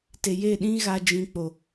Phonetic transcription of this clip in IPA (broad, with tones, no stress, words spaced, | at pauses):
te˨je˦˨ɗĩ˦ɣa˧ d͡ʒĩ˧k͡po˨